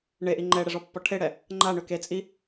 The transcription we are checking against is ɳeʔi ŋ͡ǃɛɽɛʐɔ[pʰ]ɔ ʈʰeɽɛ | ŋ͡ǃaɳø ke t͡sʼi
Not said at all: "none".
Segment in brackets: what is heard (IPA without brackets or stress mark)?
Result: pː